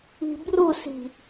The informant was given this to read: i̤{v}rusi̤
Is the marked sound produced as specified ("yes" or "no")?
no